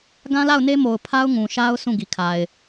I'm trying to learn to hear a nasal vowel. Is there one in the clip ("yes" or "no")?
yes